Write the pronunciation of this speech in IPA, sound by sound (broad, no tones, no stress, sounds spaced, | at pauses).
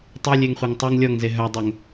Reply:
tˤ e lʲ e ŋ χʷ e ŋ tˤ ɵ ŋ lʲ ɔ ŋ z e ɦ œ dˤ ɵ ŋ